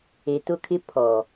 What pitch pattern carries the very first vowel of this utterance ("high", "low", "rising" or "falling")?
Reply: low